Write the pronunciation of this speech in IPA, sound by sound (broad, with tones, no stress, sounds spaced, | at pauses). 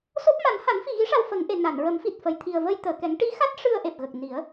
s o˦˥ p̚ m a˨˩˦ n h a˨˩˦ n f i˨˩ ɣ i˧˥ ʂ a˧ w f ə˨˩˦ ŋ ʔ e˨˩˨ n a˨˩˨ n ɹ ə˨˩˦ m f i˨˩ t̚ f ə˨˩ j t̪ʰ i˨˩ ə̯ v ə˧ j t̪ əː˨˩˨ k ɛ˨˩˦ ŋ ʈ i˧˥ x a˦˥ t̚ ʂ ɨ˧ ə̯ ʔ e˨˩ p̚ ɣ ə˨˩ k̚ n i˨˩˦ ə̯